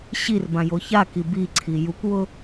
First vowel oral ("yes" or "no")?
yes